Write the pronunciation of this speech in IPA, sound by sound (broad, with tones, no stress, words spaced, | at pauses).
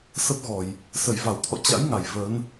sə˦˥p̚ɣɔ˧˩˨j | sə˧˩jva˧˩wt̪ʰɔ̰˧˨ t͡ɕa̰˧˥jŋa˧˩j vəː˨˦n